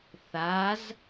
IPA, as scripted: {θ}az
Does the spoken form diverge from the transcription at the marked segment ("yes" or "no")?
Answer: no